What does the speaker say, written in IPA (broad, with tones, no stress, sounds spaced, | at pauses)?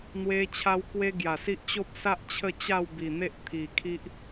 n̪ w e˧ t͡ɕʰ a˧ w k w e˦ ɡ j a˨˩ s i˦ ʔ t͡ɕ o˦ p̚ s a˦ ʔ t͡ɕʰ ə˥˧ t͡ɕ a˥˧ w b i˨˩ n̪ e˦ ʔ t̪ʰ i˨˩ kʰ i˦ ʔ